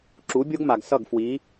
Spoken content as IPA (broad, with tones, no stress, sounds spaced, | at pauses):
ǁ u˨˦ bʲ o˦ ɡ m a˨ ɡ s ʌ˦˨ ɡ f w i˨˦